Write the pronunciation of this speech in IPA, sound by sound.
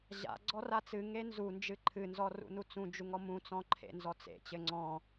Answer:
ʑa̰ ɡ͡ǀɔrat͡sɨ ŋenzu nd͡ʒɨǃʰɨnzɔ rṵnut͡sũ d͡ʒuŋɔmũ t͡sɔ̃ǃʰḛnzɔt͡sḛ t͡ɕɘŋ͡ǀɔ̃

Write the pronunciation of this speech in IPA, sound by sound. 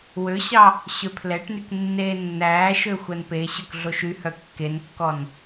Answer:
wøɕɑ | ɕøpʰlɛʈnyk nːeːnːæːʃø xʷænpeɕøk ɮoʃyhœ kːenkːɔn

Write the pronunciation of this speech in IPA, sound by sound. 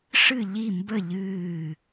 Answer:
ʂɨ˦˨ʎi˦˨mbə˦˨ ʎɨː˦˨

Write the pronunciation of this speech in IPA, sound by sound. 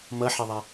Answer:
mʌħɛðˤæ

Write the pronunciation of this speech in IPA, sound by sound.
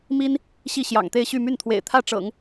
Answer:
mi˥n | ɕi˥˩ɕjɑ̰˨˩ŋt̪e˥˧ɪ̯ɕy˥˧ my˥˩nt̪ʰwḛ˨˩ɪ̯ t̪ʰä˥˩ʈ͡ʂɤ̰˨˩˦ŋ

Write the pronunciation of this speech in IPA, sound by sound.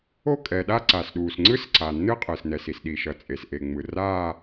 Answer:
o˥˧kʼɛː˩ɗa˥˧ ǀaː˩sɗuː˩sŋ͡ǀɯ˥˧sǀaː˩ nːɯ˥˧qʼɯː˩snɛ˩s i˩sɗi˩ʃʌ˩ t͡sʼe˩sʔe˩ ŋ͡mɯ˩raː˥˧

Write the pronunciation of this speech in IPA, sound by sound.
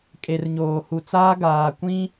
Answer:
kʼe˨rɲoː˨hu˨t͡saː˦ ɡaː˨kʷĩ˦

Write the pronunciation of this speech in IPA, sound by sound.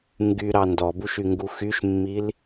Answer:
ŋɡyɾɑ ndɔbuʃyŋɡu xyʃmːil

